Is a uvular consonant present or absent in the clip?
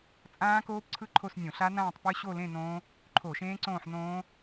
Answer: absent